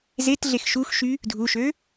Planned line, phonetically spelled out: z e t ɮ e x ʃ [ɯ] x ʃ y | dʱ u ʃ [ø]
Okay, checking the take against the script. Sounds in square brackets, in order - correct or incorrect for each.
incorrect: u, correct

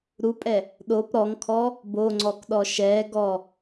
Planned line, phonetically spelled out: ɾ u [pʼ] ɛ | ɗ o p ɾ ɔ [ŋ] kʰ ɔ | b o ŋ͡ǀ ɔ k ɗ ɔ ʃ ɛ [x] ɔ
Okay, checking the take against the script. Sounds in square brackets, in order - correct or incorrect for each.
correct, correct, incorrect: ɡ

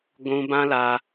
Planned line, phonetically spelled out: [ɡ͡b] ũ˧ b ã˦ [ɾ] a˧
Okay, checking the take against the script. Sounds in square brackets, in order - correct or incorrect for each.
incorrect: ɡʷ, incorrect: l

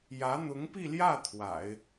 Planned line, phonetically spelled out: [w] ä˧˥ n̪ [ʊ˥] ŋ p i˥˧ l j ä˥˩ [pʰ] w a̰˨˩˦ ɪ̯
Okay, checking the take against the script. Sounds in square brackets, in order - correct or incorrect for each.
incorrect: j, incorrect: ʊ˧˥, incorrect: t̪ʰ

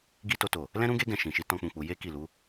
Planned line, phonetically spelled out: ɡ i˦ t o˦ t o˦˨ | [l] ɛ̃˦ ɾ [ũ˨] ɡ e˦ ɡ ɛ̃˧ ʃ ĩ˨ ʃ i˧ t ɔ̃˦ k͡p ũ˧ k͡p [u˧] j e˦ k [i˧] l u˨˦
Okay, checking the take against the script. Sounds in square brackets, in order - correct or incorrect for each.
correct, incorrect: ũ˦, correct, incorrect: i˦˨

